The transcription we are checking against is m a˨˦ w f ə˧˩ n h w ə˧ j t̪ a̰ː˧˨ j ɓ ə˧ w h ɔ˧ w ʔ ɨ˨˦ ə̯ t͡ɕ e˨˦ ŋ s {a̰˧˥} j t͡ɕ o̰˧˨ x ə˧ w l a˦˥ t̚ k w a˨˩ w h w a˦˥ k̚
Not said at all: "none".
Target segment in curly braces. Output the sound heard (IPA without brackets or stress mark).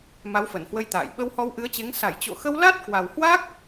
a˧˩